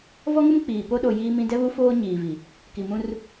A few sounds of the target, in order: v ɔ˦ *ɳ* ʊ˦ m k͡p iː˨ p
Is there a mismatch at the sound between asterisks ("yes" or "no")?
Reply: yes